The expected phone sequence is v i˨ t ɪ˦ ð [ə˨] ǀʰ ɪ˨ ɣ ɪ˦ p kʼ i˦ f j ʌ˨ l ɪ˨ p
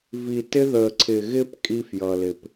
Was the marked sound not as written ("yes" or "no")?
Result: no